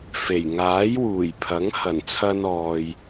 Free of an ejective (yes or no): yes